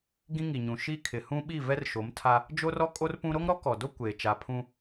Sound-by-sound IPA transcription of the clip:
ɡĩ˦ŋi˨ɲũ˨ ʃi˦ kʰɪ˨ hũ˦ɓi˦˨ vɛ˦rʃo˨˦mtʰa˦ | d͡ʒo˦rɔ˦ kʼo˦rpũ˦ ɾo˦ŋɾɔ˦kɔ˨do˦ kʷeː˨ t͡ʃa˨pʰũ˦

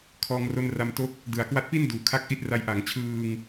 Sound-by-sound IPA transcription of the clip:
kʰɔː˧ŋro˧n ra˧mto˦˥k̚ | dɯ˩˦a̯kwa˦˥t̚pi˥˩n duː˩˦kʰa˦˥k̚ʔi˦˥t̚ra˧j ʔa˩˦ŋt͡ɕʰɯː˧ŋ

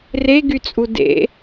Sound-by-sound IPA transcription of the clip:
reɡyt͡sʼu dḛ

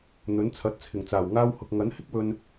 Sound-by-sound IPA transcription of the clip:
n̪ɵ˨˥nt͡sʰɐ˨˥t̚ t͡sʰɪ˨˩ŋt͡saː˨˩w ŋaː˧whʊ˨k̚ ŋɐ˨˥nhɪ˥k̚wɵ˧n

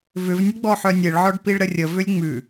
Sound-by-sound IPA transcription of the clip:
vʏvnʲəɡ͡bɔħœ nʲeɭʕɔɖpiɭɾə rʲəvʏlʲ ŋ͡mʉ

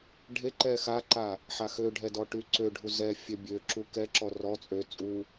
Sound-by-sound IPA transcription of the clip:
ɖʱeǃɛ xaǃa | ħaxøɖʱɛ dɔʈyǀøɖʱu zɛ fʲɛbʲøǁu kɛǁɔ rɔ t͡sʼø t͡sʼu

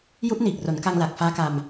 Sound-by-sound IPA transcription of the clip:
ju˦˥ʔniː˨˩k̚ ro˩˦nka˧ŋla˨˩k̚ faː˦˥ka˧m

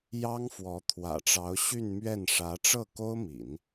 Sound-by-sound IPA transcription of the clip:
jɑ˥ŋfwɔ˧˥ t̪ʰwä̰˨˩ʈ͡ʂɑ˧˥ʊ̯ ɕy˥˧nmɥɛ˥˩nʂä˧˥ ʈ͡ʂɤ˥˩ko˥ʊ̯mḭ˨˩˦n

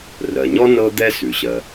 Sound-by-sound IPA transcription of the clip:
rɜ˩ɲɔ˥ nɤ˥d̪ɛ˥ sʉ˩ɕɜ˩

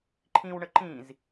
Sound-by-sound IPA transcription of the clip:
ǃʰĩwɳə ǃĩz

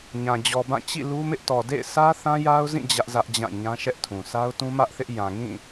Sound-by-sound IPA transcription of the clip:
ɲã˨ d͡ʑɔ˨bã˦˨ t͡ɕḭ˦˨ lu˦mɪ˦ʔ tɔ˨dḛ˦˨ɪ̯ sʰä˦ θã˦ja˦ʊ̯zĩ˦˨ d͡ʑä˦ʔzä˦ʔd͡ʑã˦˨ ɲã˦ʃɛ˦ʔtʰũ˨ sa˦ʊ̯tũ˦mä˦ʔθɪ˦ʔ jã˨ŋĩ˦˨

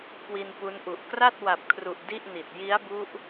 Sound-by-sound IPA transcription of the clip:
kwi˧npu˦˥nʔu˨˩ʔ kra˥˩t̚ wa˨˩p̚kʰru˨˩ʔ di˥˩ʔni˨˩t̚ ji˦˥a̯bu˦˥ʔ

